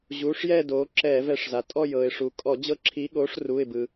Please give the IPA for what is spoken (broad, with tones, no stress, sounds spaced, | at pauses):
ʑ uː˩˧˩ ʂ j ɛː˦˨ d oː˩˧ ǁ ɛː˧˩˧ v ɛ˧˩˧ ʂ z a˩ tʼ ɔ˦˨ j ɤː˩ ɪ̯ ʂ u˩ kʼ ɔ˧˩˧ d͡ʑ ɤ˦˨ ǁʰ i˨˥ ɠ oː˨˥ ʂ r uː˩˧˩ ɪ̯ b ɯ˩